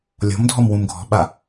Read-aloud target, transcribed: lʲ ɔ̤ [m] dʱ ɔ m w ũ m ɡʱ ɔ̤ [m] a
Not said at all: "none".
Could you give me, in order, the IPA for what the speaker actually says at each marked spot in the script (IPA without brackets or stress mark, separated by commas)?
m, ɓ